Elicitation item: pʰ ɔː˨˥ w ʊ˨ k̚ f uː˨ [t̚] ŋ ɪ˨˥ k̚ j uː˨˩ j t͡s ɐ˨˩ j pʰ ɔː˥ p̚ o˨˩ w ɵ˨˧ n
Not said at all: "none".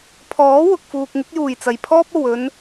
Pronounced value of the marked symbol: k̚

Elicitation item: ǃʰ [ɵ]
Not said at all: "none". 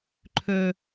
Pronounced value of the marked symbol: ɵ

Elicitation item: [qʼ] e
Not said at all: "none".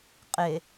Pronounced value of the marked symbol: qʼ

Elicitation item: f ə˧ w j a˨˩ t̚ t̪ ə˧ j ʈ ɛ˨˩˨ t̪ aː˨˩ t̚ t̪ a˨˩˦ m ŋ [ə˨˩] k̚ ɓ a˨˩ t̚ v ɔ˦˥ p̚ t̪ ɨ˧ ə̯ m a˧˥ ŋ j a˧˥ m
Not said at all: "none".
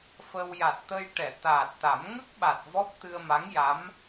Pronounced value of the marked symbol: ə˦˥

